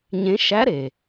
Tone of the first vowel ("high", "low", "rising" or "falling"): rising